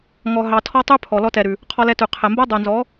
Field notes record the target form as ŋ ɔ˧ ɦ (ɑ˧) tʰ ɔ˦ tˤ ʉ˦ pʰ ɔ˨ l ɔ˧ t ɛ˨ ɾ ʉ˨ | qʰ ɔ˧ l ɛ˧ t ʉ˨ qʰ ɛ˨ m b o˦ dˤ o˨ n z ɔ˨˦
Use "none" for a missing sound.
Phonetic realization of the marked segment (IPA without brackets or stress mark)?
ɑ˧